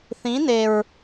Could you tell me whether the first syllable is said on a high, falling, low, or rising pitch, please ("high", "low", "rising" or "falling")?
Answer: rising